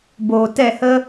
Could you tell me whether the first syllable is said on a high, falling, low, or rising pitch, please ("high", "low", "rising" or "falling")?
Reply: low